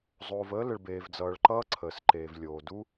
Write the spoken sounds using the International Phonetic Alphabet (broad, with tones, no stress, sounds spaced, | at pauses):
zˤ oː˩ v əː˥ l ə˩ ɭ b eː˩ v d͡z ʌː˩ ɭ ǃ ʌː˥ ǀʰ əː˩ s ǃ eː˩ v lʲ oː˩ d u˥